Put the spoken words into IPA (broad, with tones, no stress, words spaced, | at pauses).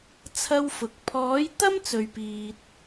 t͡sʰɐ˥wfʊ˨˥k̚ pʰɔː˨˥jt̪ɐ˥m t͡sɵ˨ɥpiː˨t̚